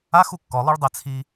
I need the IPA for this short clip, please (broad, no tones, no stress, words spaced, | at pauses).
ax ukːɔ lˠuɭdˤet͡sʰi